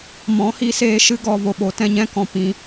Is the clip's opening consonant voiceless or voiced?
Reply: voiced